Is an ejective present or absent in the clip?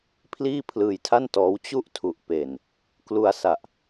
absent